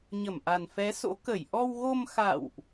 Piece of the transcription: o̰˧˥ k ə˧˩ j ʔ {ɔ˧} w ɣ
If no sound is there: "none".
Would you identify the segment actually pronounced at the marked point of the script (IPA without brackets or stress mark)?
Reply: ɔ˧